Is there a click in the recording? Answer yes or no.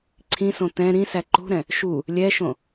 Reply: yes